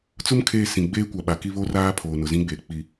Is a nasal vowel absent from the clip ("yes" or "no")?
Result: no